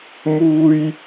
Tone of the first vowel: high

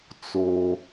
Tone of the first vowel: low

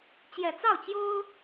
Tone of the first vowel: low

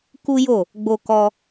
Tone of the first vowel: high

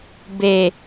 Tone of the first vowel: low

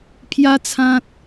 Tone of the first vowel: high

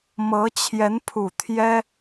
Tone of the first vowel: rising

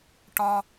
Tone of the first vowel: high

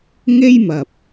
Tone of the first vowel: high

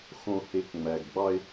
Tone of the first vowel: low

